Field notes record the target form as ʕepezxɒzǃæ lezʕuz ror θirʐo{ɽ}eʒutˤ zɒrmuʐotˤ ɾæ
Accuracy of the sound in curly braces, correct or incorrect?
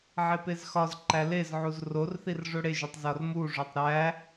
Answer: correct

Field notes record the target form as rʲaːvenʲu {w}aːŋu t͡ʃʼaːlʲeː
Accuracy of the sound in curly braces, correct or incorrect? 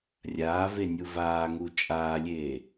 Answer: incorrect: v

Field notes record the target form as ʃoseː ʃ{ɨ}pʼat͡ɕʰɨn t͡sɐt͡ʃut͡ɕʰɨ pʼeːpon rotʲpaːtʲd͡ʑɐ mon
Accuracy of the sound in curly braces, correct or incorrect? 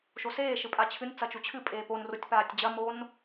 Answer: correct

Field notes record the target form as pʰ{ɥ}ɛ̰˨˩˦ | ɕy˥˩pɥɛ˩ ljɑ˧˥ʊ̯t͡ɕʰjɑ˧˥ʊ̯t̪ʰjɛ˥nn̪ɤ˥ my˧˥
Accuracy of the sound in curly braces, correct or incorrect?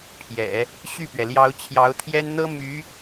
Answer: incorrect: j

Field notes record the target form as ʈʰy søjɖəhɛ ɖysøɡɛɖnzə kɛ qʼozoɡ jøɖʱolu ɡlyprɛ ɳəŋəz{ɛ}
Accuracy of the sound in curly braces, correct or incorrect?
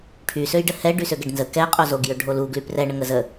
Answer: incorrect: ə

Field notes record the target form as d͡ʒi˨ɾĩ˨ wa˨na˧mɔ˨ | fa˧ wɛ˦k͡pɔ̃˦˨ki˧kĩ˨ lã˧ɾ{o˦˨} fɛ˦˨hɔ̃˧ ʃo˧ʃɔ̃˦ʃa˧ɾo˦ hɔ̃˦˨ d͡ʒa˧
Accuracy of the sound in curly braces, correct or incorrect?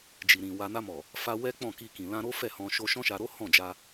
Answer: incorrect: o˦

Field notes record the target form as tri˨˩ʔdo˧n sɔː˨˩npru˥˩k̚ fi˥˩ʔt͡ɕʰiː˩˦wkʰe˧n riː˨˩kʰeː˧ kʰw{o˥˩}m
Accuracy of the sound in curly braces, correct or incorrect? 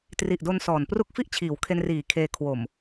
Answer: incorrect: o˨˩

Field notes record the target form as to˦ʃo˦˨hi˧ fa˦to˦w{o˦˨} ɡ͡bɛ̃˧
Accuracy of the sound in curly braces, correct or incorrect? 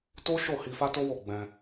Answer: correct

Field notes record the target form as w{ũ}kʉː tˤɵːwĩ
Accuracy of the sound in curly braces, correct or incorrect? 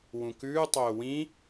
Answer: correct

